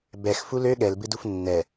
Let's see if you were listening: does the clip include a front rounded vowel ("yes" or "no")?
yes